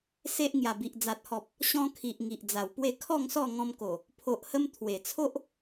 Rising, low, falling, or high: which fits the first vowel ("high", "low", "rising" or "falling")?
high